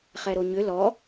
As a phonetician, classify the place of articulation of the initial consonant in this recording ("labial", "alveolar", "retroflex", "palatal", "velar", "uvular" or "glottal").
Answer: uvular